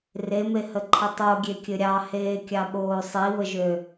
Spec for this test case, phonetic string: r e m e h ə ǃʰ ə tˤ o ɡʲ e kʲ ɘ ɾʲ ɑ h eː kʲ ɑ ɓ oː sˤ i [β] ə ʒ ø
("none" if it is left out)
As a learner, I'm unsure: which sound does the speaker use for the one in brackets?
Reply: β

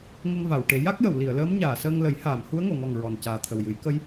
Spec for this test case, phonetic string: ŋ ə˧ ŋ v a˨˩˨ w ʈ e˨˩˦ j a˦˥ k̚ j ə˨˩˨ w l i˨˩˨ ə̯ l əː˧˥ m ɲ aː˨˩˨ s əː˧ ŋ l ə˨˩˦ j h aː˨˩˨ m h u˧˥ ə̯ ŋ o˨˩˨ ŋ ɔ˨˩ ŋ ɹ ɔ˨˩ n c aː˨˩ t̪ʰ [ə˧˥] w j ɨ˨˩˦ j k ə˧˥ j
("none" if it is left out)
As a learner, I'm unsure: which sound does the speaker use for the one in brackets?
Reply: ə˨˩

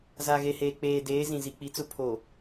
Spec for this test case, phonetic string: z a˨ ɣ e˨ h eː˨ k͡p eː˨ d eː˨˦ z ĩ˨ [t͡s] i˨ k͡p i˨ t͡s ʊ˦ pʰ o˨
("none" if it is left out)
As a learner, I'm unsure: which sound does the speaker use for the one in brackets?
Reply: z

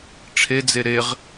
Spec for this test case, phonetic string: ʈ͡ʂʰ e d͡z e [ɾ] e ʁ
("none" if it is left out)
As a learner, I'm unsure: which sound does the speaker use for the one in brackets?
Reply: ɾ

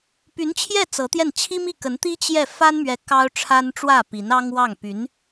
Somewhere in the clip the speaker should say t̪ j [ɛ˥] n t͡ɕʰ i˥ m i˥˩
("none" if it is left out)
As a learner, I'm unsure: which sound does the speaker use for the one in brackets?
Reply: ɛ˥˩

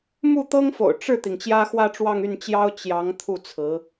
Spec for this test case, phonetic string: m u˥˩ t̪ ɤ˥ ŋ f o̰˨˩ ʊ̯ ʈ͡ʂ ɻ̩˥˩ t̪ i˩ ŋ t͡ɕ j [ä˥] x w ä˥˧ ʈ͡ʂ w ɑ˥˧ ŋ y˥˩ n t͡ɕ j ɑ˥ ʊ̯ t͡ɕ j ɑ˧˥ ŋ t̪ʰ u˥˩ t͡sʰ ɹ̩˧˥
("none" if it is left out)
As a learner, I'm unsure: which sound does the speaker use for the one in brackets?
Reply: ä˥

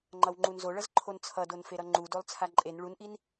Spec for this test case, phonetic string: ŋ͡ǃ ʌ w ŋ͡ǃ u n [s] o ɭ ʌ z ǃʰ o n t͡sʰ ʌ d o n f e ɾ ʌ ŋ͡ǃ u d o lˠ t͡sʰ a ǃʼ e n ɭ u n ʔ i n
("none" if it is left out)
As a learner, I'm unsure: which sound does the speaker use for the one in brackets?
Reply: z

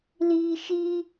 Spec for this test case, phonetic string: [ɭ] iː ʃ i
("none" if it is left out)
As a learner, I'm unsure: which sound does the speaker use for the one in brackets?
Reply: l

